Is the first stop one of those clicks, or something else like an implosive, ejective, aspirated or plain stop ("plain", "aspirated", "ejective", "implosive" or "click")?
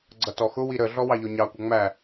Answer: click